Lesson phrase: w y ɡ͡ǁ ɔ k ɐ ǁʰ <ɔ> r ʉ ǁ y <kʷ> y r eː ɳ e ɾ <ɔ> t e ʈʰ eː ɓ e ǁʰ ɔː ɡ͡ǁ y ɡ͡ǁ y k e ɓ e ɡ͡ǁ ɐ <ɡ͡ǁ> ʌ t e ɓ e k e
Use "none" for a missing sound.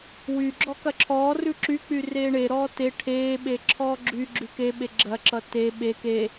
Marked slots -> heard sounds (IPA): ɔː, k͡p, ɔː, ǁ

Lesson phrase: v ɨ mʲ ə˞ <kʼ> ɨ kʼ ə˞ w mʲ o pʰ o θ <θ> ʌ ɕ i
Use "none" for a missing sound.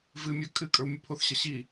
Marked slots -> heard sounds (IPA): kʼ, ɕ

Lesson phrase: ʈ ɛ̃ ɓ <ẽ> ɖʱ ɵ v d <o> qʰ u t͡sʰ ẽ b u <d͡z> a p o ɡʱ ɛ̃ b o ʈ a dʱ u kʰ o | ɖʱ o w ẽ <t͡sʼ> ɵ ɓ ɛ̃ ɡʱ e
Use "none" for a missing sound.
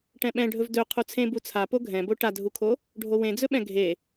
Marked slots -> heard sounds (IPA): ɛ̃, ɵ, t͡sʰ, d͡z

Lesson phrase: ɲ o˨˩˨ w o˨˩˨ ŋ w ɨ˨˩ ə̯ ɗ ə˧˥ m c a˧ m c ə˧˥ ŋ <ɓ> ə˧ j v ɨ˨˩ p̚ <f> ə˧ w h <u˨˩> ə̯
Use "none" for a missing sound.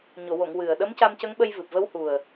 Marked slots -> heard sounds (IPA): ɓ, v, u˨˩

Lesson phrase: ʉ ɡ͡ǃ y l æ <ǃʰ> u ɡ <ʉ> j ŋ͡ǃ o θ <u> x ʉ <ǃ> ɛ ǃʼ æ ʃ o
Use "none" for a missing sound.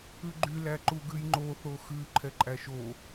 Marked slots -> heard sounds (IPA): ǃ, ʉ, o, ǃʰ

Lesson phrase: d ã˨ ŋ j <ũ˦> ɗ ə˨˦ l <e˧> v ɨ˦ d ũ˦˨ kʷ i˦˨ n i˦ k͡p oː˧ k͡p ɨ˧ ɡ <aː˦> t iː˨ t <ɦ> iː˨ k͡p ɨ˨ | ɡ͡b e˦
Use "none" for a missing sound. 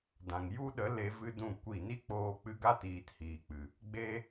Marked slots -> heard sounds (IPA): u˦, e˧, a˦, h

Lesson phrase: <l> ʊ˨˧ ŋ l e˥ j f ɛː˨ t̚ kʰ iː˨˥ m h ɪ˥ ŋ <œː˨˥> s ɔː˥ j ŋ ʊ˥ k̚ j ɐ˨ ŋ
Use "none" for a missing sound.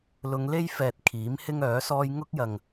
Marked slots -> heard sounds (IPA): l, œː˨˥

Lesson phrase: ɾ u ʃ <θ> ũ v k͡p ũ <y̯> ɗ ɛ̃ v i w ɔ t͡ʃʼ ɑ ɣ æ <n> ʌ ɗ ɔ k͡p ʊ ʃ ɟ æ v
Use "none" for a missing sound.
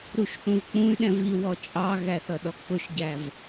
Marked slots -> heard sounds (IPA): θ, y̯, θ

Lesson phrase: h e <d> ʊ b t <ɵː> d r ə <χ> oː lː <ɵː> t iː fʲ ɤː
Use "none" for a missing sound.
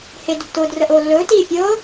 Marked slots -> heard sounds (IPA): d, ʊː, ʔ, ɵː

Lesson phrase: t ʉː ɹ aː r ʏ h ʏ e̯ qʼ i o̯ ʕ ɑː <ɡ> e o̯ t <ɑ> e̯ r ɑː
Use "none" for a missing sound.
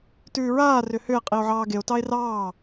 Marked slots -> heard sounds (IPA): ɡ, ɑ

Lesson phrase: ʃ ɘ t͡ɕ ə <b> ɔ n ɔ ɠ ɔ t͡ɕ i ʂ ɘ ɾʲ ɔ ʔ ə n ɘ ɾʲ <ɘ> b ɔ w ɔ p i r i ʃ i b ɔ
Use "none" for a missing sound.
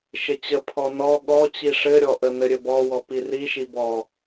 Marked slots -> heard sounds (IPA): pʰ, ɘ

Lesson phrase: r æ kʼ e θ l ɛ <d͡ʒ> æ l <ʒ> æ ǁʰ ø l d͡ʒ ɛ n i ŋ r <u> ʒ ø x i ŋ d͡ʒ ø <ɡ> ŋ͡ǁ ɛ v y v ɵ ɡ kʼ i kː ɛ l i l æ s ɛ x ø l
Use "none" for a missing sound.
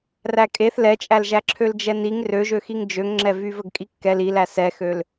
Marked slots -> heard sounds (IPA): t͡ʃʼ, ʒ, ø, ŋ

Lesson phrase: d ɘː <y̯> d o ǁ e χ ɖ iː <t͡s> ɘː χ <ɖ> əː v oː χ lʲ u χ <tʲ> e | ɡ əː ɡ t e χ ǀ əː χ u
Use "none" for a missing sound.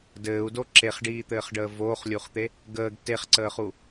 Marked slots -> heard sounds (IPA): u̯, t̪, ɖ, t̪

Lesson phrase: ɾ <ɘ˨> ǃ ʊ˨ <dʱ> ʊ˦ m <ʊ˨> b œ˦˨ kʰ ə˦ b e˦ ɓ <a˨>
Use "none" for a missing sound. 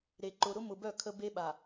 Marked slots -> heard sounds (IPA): e˨, ɾ, ʊ˨, a˨

